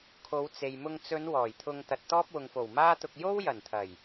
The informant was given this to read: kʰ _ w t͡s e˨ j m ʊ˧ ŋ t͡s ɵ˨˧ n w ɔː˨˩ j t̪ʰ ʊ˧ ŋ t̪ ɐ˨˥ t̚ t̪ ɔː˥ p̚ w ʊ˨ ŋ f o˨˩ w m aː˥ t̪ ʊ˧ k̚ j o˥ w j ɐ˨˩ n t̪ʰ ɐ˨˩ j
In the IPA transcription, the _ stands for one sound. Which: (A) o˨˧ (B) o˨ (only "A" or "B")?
A